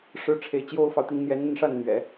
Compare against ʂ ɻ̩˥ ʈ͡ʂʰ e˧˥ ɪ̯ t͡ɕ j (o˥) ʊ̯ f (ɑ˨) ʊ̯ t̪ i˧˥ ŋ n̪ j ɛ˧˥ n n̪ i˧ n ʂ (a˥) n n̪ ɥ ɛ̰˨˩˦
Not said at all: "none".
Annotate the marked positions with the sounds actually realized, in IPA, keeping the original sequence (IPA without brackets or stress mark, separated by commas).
o˥, ɑ˨, a˥˩